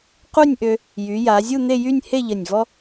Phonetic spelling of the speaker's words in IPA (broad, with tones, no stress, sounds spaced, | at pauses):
q u˥˧ nʲ ʔ ø˧ | j y˩˧ j a˩˧ zʲ u˥˧ n̪ e˥˧ j y˥˧ nʲ h e˥˧ ʎ ə˧˩ nʲ v ɔ˥